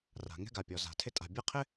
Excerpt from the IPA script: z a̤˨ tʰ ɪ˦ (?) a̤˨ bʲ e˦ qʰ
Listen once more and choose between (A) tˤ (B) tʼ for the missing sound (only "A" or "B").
B